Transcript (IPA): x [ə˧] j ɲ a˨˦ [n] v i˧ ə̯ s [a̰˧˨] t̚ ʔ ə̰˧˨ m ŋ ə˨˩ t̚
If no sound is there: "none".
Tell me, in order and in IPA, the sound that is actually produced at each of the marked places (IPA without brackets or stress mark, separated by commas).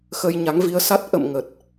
ə˧, ŋ, a˦˥